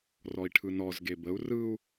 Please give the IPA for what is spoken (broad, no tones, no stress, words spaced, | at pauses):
rɔi̯ʈʰɯnɔz ɡebəu̯ rɯu̯